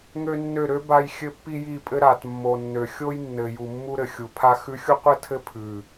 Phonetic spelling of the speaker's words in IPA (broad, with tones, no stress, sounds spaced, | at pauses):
ŋ ø˦ nː ø˦˨ ɾ ø˦ b a˦ j xʲ ɘ˦ pː i˦ j i˦˨ pʼ ɘ˦ ɾ a˨ t mː o˨ nː ø˨ xʲ o˦ j nː ɘ˨ j u˨ mː u˦ ɾ ɘ˨ xʲ u˨ pʰ a˦ x ʉ˦ xʲ u˦ qʷ ɘ˦ tʰ ɘ˦ pʰ ʉ˨